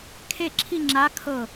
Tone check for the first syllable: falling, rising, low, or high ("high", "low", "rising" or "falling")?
falling